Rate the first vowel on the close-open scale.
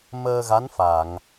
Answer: mid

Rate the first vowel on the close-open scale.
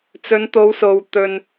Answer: mid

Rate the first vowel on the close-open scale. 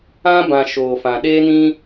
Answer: open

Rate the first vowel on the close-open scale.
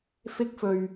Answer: close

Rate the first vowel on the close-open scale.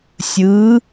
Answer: close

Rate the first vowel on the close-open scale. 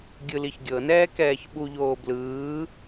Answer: close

